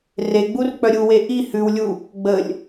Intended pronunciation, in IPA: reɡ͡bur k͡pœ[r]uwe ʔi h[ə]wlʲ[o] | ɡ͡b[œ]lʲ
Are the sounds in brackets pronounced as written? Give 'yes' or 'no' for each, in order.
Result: no, no, no, no

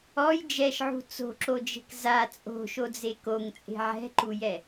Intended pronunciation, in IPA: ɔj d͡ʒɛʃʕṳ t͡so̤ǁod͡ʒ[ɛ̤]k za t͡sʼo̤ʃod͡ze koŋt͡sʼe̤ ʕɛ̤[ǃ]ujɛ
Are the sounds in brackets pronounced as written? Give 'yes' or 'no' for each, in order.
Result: no, yes

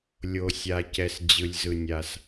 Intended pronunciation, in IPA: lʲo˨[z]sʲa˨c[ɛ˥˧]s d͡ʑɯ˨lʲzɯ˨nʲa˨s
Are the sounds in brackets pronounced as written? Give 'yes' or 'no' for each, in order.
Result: no, no

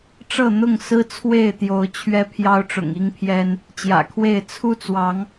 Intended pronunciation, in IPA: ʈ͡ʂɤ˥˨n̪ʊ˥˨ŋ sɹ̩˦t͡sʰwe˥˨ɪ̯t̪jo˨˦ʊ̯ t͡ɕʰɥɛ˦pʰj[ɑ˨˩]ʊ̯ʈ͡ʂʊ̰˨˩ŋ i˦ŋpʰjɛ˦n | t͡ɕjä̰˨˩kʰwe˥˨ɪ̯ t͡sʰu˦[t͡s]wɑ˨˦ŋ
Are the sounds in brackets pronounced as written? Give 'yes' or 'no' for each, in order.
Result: no, yes

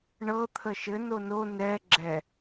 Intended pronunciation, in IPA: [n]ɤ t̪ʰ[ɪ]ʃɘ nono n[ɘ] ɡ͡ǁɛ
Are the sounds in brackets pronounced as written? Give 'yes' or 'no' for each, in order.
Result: no, no, no

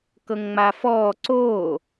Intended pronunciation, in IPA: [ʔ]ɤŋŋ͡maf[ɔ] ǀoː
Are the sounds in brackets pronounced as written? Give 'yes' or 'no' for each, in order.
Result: no, no

